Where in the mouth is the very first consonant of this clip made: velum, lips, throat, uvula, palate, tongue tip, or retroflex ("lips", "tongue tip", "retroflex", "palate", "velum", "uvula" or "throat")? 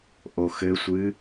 throat